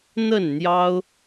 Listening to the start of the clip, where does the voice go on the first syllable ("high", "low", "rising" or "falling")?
falling